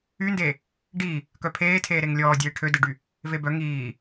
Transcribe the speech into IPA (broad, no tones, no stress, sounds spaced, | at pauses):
y n d eː | ɖ iː | k œ pʰ eː tʰ eː ɾ e ŋ lʲ ɔː dʲ eː ʈʰ ø d e ɖ y | v e b œ ŋ iː